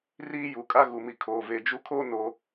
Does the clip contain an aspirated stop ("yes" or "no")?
yes